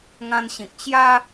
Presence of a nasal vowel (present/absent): present